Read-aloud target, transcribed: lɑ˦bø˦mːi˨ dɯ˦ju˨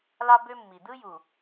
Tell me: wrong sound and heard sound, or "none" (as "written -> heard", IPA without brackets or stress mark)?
none